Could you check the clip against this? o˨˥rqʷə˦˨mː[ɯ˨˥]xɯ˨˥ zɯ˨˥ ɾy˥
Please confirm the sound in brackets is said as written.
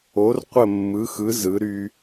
yes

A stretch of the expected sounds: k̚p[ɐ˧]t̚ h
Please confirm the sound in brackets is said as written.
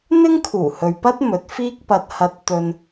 yes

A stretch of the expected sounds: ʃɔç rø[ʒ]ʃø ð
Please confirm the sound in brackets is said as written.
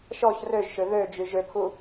yes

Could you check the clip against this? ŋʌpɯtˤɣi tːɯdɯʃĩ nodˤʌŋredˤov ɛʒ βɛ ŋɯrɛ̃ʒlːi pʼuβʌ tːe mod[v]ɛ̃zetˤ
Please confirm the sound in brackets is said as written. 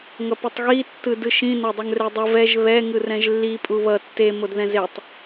no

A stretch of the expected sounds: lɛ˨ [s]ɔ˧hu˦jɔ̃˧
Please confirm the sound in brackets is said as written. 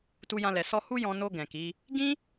yes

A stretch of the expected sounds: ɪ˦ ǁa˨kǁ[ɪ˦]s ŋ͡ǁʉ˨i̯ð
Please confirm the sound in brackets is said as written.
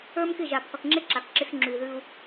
yes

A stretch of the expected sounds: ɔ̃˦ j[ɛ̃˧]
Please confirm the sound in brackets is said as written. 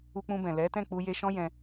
yes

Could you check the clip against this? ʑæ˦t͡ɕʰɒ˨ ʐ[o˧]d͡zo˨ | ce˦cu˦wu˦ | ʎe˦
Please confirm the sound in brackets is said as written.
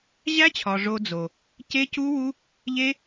yes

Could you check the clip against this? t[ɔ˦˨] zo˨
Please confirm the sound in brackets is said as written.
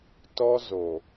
no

